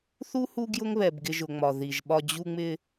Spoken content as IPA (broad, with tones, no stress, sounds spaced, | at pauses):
θ u˥ h u˦ ɡ j ʊ˦ ŋ β ɛ˩ b ɡ ɪ˨ ʒ ʊ˩ ŋ͡m ɒ˩ ð i˩ ʒ ɓ ɒ˨ d͡ʑ u˨ ŋ͡m ɪ˨